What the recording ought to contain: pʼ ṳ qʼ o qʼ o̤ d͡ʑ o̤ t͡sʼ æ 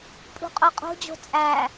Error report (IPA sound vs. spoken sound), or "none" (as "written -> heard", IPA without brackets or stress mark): none